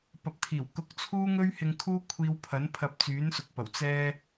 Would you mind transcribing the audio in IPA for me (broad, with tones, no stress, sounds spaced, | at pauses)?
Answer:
p ɐ˨ p̚ t̪ʰ iː˨˩ w k ʊ˧ k̚ t͡sʰ uː˥ ŋ ɵ˥ ɥ h ɪ˧ ŋ kʰ uː˥ kʷʰ iː˧ w pʰ ɐ˨˥ n pʰ ɐ˧ p̚ t͡s yː˨˥ n s ʊ˨ k̚ p ɐ˨˩ w t͡s ɛː˧